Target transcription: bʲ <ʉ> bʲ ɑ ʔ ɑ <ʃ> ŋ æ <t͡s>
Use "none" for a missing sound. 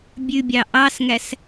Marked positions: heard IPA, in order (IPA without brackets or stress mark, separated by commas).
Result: ʉ, s, s